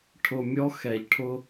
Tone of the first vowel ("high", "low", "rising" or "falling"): low